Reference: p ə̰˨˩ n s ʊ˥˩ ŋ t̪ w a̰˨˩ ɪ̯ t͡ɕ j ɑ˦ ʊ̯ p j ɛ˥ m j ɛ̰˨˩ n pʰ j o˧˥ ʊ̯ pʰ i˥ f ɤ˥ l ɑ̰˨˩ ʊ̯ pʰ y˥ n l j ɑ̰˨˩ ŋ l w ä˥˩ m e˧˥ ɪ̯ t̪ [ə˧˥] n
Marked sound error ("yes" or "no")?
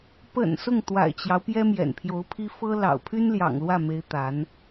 yes